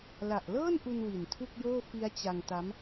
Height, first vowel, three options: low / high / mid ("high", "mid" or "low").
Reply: low